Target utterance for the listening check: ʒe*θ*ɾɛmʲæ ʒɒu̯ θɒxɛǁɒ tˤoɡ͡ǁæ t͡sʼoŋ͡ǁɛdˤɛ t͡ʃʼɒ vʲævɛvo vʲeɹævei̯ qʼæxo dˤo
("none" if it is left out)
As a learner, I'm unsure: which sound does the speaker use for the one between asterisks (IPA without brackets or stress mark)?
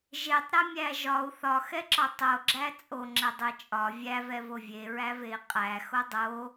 tˤ